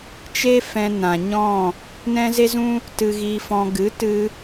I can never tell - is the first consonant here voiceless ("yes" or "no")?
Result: yes